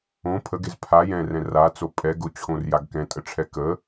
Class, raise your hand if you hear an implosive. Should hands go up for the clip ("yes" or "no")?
no